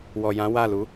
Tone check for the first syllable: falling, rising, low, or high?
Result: low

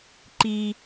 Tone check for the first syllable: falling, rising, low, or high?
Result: high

